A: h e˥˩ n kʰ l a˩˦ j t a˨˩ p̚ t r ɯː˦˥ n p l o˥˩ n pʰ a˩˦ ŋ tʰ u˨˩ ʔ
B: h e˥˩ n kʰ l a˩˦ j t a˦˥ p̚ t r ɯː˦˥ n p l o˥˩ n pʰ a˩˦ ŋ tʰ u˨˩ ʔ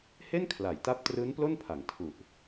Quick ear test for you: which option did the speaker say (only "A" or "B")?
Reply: B